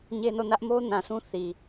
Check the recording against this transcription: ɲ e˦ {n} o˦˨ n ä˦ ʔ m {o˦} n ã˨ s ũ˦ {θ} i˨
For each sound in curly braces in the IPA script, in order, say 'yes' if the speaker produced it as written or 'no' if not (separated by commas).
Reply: yes, yes, yes